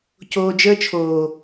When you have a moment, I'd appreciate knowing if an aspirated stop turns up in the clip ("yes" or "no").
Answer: yes